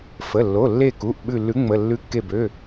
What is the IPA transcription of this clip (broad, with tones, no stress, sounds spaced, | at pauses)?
f ə˩˧˩ lː o˩˧˩ lː e˧˩ k u˩˧˩ ʔ ɓ ʉ˧˩ lː ʉ˨˥ ŋ͡m ə˩˧˩ lː ʉ˨˥ kː e˧˩ b ø˩˧˩